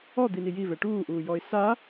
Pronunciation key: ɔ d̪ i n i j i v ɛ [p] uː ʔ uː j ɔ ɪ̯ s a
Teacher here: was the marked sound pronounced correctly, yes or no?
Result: no